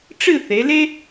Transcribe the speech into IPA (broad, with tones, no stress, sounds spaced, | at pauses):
ʈ͡ʂ ɨ˥˧ θ e˩˧ l e˥